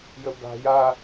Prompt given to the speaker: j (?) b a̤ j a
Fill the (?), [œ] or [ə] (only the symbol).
ə